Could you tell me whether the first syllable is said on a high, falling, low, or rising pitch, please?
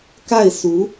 falling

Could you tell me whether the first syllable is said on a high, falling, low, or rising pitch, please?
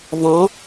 rising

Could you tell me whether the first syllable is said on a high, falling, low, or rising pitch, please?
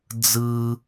high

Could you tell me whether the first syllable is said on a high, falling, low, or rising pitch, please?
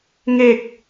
low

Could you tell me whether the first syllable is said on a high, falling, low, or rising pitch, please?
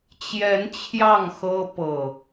rising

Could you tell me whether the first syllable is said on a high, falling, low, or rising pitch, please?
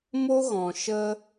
high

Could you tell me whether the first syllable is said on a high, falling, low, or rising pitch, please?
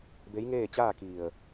rising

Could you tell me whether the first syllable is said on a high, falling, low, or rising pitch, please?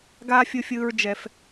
high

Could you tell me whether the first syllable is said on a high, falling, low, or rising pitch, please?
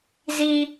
high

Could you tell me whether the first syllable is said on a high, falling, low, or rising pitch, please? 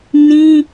high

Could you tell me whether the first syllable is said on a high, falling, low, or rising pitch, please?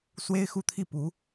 high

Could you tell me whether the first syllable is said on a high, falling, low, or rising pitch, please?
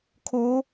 rising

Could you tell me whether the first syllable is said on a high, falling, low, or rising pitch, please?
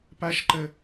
high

